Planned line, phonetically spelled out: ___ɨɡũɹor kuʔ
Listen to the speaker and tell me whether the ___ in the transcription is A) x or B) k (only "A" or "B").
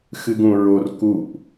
A